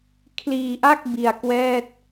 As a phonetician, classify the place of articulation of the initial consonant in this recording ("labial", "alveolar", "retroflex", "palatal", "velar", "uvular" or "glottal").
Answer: velar